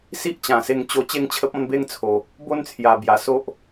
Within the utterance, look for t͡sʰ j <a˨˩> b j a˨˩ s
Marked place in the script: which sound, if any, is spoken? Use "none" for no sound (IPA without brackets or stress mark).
a˨˩